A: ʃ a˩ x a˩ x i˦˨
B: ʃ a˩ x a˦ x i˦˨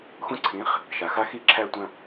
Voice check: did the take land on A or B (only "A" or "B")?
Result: B